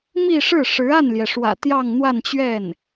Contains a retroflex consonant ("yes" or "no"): yes